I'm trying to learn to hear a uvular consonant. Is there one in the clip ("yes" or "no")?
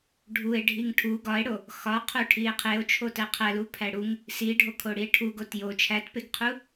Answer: yes